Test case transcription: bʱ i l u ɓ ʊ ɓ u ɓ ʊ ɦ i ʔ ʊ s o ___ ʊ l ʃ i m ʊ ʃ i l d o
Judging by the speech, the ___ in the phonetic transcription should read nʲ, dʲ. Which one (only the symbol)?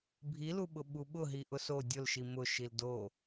dʲ